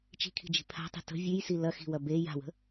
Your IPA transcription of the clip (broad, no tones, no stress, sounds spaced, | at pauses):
t͡ʃ i̤ kʰ i̤ d͡ʒ i̤ pʰ a̤ tˤ i̤ t ə̤ vʲ ʉ j s i l ɐ x i̤ w ɐ b e j a̤ w ə̤